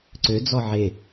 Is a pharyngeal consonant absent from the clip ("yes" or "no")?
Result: no